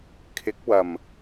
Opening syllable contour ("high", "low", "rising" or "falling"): rising